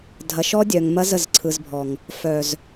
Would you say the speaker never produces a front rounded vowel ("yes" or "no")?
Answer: no